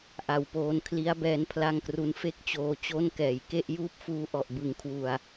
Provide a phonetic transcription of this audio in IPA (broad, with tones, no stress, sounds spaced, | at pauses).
ʔ a˨˩ w p oː˧ n kʰ l i˦˥ a̯ b ɛː˧ n pʰ l a˥˩ ŋ k r u˦˥ n f e˥˩ k̚ t͡ɕ oː˧ t͡ɕ o˥˩ n k ɛː˨˩ j k e˥˩ ʔ j uː˥˩ p̚ f uː˦˥ ʔ ɔ˨˩ ʔ b ɯ˨˩ ŋ kʰ w u˨˩ a̯